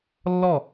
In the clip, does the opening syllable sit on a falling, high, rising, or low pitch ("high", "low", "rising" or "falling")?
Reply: falling